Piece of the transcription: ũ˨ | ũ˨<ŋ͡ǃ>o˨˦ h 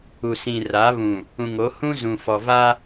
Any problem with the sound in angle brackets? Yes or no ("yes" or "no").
yes